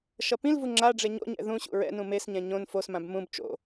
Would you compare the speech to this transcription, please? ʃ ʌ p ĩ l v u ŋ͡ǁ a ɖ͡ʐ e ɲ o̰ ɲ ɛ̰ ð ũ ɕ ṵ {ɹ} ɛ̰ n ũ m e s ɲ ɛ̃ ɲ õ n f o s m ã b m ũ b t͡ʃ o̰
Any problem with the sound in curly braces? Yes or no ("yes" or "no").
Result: no